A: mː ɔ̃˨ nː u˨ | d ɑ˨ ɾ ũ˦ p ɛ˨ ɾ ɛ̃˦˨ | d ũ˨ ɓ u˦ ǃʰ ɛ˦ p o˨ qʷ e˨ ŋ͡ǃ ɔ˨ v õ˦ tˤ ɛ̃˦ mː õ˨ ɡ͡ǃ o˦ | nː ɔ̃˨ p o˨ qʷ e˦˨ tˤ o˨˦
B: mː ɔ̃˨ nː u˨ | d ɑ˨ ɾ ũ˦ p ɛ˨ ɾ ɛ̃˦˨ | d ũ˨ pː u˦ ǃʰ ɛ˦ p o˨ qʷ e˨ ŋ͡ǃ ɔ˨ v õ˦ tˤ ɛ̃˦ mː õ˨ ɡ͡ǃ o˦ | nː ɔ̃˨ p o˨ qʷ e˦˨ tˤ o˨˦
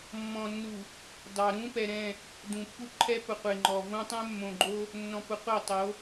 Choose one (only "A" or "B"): B